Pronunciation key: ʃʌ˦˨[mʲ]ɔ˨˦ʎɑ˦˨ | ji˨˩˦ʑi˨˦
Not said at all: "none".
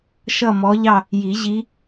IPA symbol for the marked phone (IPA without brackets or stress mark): m